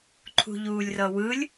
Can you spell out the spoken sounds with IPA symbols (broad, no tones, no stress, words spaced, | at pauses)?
ǃʰṳʎuːlʲrʌwɯlʲ